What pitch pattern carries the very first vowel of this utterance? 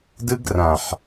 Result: high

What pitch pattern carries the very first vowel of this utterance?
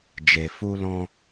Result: low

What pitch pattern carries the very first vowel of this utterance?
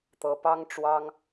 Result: rising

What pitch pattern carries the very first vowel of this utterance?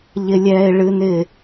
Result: high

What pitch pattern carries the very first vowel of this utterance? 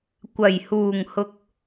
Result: low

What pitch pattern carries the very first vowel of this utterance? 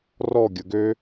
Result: falling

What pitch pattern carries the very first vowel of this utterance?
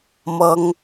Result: high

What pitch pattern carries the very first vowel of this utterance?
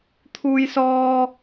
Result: high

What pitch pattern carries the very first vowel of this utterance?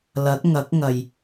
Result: rising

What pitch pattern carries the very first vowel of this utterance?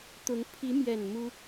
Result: rising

